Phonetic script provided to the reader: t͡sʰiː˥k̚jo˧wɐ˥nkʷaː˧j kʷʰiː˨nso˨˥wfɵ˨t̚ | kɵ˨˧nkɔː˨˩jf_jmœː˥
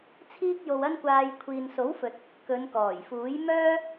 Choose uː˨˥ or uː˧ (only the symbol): uː˨˥